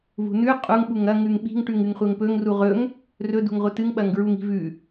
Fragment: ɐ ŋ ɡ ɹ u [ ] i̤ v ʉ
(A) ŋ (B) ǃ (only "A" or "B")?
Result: A